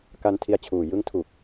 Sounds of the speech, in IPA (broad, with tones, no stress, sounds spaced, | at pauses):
k a˧ n tʰ i˧ a̯ t͡ɕʰ uː˨˩ j ɯ˦˥ ŋ tʰ u˨˩ k̚